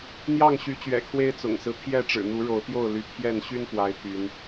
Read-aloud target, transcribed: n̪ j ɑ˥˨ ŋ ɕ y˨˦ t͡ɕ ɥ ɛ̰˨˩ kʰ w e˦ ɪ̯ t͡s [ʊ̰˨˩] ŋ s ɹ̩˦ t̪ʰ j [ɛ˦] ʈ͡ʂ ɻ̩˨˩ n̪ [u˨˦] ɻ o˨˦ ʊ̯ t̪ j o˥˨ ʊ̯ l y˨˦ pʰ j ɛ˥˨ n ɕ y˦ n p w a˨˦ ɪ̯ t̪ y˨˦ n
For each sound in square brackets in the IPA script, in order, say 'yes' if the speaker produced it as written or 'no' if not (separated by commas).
yes, no, yes